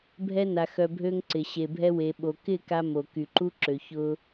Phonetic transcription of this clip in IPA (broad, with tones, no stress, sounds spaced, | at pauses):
bʱ ɛ˧ n a˨ x œ˨ bʱ ø˧ ŋ ǀ ɪ˨ ɕ e˨ bʱ ɛ˧ w e˨ ɓ o˨ k ɪ˦˨ k a˧ m o˨ k y˨ ǃ u˧ ǁ ø˨ ç ʊ˧